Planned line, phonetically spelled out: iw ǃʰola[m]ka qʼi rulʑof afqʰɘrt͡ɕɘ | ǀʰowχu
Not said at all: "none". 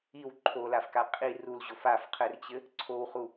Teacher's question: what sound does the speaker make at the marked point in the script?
f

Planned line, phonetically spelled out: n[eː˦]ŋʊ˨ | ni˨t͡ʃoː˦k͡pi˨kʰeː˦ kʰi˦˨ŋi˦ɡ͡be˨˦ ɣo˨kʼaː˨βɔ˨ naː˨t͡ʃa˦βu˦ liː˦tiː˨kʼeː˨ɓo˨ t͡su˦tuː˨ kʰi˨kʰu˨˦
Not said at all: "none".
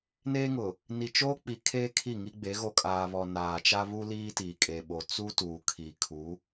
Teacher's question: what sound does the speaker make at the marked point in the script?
eː˦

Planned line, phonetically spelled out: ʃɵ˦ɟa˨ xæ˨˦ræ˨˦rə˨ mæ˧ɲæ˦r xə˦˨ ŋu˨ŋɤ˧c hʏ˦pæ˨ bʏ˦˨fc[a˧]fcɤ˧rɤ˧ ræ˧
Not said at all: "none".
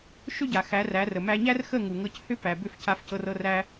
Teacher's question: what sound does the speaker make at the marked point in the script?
a˧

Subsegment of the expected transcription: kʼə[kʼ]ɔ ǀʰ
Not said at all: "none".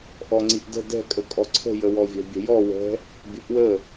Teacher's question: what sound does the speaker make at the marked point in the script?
kʼ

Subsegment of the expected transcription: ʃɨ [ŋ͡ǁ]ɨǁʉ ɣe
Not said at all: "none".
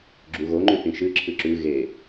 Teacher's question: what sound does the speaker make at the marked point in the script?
ǁʰ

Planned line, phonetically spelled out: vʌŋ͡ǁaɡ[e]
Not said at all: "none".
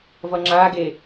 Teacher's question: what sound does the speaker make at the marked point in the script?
e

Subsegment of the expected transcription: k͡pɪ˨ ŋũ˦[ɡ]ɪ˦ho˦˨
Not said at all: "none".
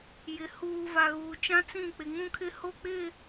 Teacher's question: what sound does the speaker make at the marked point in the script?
kʰ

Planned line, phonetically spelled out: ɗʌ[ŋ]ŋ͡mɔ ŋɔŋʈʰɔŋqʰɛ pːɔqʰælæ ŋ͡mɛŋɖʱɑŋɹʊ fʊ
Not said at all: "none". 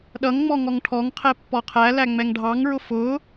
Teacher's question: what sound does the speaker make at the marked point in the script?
ŋ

